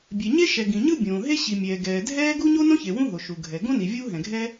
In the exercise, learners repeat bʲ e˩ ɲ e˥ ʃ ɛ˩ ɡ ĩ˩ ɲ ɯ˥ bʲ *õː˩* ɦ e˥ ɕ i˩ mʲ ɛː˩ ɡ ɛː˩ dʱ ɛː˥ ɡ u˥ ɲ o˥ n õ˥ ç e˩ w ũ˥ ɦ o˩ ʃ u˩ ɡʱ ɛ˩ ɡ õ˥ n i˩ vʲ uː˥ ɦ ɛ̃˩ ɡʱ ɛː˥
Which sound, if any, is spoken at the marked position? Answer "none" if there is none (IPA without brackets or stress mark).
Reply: õː˩